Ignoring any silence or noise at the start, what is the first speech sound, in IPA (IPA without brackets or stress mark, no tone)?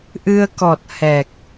ʔ